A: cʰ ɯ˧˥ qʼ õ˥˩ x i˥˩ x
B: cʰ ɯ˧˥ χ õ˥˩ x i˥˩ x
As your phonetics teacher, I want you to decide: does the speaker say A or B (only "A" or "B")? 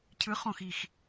B